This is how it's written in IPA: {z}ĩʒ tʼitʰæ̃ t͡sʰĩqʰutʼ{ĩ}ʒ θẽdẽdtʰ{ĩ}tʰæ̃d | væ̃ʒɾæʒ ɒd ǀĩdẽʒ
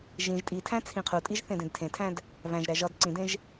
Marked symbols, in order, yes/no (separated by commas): no, no, no